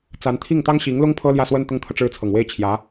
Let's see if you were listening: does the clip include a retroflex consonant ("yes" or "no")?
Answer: yes